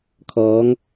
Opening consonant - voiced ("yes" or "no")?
no